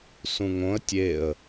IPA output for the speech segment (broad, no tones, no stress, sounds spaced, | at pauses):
s ũ ŋ õ ə̯ tʲ e ə̯